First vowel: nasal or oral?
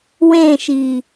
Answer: nasal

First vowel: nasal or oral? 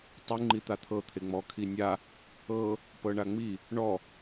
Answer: oral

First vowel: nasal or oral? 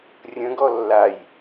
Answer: nasal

